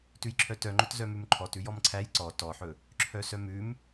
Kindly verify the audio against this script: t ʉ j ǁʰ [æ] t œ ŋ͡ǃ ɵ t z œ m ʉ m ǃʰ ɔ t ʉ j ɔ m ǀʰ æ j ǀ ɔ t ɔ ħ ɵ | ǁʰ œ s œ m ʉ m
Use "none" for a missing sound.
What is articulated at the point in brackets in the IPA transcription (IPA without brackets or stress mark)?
œ